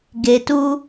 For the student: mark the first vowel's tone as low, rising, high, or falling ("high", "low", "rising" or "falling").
low